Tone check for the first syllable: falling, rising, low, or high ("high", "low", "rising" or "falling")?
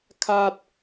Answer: high